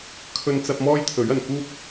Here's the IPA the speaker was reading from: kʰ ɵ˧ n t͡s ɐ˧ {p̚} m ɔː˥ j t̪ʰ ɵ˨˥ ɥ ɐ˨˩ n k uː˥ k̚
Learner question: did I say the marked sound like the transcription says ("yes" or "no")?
yes